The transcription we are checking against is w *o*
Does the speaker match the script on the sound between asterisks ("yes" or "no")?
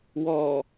no